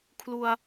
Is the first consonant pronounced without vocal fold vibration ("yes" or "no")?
yes